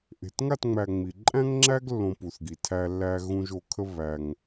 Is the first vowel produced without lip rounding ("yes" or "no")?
yes